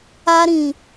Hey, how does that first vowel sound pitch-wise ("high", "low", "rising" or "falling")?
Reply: high